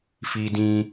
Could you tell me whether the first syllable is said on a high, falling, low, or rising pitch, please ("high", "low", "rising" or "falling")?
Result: high